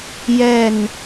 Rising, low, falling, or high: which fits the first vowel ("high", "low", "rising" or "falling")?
falling